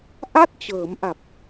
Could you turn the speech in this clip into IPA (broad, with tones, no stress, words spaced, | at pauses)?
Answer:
ʔa˥˩t̚t͡ɕɤː˩˦mʔa˨˩p̚